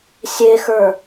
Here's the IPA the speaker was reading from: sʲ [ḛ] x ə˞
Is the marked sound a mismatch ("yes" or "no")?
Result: yes